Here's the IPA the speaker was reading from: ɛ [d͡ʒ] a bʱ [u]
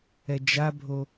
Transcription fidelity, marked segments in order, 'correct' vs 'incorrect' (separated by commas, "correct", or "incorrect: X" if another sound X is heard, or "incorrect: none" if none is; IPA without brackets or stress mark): correct, incorrect: o